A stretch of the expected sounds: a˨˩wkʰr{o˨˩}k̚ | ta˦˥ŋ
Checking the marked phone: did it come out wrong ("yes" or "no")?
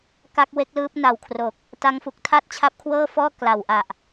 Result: no